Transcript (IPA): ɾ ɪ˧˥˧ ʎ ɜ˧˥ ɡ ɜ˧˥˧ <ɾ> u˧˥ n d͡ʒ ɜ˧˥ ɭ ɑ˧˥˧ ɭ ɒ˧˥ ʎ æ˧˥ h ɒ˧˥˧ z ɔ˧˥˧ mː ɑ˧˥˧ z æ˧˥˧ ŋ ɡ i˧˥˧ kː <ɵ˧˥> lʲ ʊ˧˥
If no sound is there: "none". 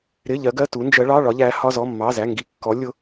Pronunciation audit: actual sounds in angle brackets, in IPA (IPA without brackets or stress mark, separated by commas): t, ɔ˧˥